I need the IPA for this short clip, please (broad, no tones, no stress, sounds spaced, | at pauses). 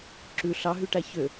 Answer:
ǁ ʉ ɬ ɑ ɦ y ʈ æ ç ø